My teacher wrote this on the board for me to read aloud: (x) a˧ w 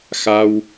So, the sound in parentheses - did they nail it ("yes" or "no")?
yes